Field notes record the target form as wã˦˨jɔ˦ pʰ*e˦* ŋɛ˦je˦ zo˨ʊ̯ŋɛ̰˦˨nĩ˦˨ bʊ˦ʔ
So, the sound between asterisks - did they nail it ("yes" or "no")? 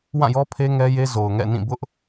yes